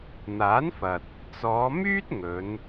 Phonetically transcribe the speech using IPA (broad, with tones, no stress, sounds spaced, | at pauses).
n̪ aː˨˥ n f ɐ˨ t̚ | t͡s ɔː˨˧ m yː˥ t̚ ŋ ɵ˨˧ n